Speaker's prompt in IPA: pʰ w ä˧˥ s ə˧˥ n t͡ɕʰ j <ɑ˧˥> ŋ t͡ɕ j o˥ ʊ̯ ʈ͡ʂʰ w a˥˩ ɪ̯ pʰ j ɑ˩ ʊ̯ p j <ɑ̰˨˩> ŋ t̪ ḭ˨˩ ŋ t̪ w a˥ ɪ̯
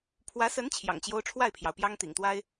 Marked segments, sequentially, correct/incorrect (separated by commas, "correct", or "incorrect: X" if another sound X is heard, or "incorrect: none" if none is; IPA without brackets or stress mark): incorrect: ɑ̰˨˩, incorrect: ɑ˥